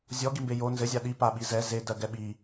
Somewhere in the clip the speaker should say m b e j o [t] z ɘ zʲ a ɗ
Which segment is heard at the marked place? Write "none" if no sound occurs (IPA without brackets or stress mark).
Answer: n